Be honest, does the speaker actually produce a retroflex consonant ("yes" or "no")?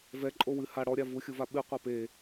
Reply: yes